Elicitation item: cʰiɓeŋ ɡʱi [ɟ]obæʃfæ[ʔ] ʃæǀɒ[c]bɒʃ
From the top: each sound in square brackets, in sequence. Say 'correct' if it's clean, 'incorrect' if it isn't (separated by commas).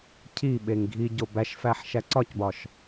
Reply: correct, incorrect, correct